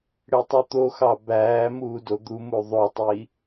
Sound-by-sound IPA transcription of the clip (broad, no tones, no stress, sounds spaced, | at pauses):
ɽ e tˤ ʉ t̪ o x ɑ b æː m uː d o d̪ u m u ðˤ o tˤ i